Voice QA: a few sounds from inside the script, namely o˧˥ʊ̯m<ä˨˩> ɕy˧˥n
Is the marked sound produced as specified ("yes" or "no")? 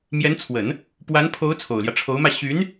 no